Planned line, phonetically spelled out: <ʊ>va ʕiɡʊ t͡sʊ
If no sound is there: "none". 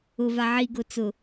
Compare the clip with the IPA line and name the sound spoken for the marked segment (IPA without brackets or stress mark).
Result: ʊ